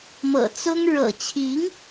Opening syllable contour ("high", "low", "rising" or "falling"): low